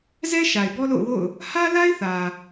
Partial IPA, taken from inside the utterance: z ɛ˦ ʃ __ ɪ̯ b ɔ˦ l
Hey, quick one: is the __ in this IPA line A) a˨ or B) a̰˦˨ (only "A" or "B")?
A